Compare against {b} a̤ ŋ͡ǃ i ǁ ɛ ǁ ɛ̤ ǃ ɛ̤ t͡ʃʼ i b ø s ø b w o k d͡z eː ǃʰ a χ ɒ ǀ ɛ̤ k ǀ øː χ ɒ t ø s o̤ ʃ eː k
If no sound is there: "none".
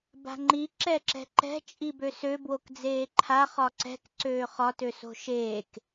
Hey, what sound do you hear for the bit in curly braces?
b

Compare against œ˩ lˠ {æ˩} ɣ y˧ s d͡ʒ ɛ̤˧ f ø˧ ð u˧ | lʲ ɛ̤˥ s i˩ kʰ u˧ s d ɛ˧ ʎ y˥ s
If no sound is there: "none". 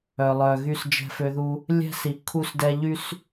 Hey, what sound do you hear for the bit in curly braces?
œ˩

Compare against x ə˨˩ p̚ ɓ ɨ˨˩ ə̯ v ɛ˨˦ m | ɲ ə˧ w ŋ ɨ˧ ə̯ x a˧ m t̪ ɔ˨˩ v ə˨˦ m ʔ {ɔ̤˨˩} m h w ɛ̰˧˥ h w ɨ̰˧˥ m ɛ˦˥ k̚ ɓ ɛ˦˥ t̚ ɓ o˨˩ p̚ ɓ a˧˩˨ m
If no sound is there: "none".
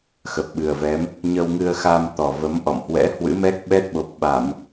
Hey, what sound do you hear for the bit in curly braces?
ɔ̰˧˨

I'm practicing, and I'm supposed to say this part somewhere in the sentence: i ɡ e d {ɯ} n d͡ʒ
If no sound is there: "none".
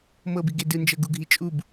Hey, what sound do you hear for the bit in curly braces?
ɯ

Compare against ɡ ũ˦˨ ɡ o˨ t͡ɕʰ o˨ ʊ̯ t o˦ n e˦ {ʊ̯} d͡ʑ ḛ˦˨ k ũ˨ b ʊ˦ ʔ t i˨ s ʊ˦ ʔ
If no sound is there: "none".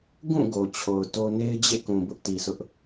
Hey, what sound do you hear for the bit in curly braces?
ɪ̯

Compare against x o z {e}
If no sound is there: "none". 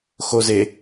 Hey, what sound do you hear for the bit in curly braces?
e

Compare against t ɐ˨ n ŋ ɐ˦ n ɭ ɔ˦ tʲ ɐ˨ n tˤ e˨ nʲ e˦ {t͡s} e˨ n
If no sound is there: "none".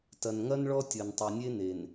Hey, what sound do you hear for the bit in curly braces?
n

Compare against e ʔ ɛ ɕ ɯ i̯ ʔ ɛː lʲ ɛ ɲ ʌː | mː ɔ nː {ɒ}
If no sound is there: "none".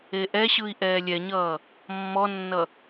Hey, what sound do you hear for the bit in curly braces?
ʌ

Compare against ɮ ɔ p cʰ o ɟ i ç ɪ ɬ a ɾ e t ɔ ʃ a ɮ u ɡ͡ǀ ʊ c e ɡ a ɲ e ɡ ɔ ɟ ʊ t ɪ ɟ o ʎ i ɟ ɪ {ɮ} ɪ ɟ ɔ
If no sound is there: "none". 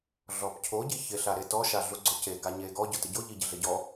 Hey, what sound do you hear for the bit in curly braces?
ɮ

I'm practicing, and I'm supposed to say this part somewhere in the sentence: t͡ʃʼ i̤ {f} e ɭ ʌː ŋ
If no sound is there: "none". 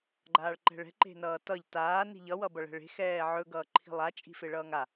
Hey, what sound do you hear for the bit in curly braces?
f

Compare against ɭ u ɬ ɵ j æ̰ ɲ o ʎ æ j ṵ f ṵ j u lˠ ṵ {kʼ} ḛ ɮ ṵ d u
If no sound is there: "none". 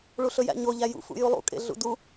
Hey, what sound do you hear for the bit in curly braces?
kʼ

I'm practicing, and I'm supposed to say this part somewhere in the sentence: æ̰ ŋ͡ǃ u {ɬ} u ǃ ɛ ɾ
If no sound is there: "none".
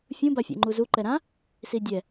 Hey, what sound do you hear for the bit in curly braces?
z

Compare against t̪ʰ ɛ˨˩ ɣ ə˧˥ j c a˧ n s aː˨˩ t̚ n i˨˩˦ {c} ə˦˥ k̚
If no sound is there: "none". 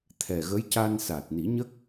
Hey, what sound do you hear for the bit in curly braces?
ɲ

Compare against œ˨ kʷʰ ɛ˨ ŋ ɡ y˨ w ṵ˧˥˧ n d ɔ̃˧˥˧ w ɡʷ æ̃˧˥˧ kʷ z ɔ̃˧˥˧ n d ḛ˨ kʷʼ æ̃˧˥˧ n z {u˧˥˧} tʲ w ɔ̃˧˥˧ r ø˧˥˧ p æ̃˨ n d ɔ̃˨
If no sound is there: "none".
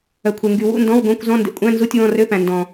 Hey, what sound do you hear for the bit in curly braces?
u˧˥˧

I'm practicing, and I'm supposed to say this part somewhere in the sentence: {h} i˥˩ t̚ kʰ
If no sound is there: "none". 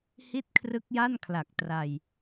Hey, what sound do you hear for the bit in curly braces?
h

